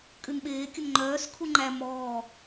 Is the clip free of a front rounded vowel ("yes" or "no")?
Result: no